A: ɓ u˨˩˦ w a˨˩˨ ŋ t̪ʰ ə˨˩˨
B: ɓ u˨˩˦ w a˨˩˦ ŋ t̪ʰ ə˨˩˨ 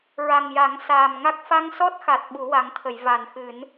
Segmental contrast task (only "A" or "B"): B